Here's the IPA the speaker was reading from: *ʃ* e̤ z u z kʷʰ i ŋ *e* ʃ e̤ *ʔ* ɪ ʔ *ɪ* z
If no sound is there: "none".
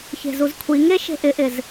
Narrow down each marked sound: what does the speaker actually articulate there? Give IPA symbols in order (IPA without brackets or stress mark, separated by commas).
ç, e, ʔ, ɪ